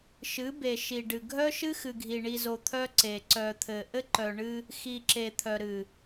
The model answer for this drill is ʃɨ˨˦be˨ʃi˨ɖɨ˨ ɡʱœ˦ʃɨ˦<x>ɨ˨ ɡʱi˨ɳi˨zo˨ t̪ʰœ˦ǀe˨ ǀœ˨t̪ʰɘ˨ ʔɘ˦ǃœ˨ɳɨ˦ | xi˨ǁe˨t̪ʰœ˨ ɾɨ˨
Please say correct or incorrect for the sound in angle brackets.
correct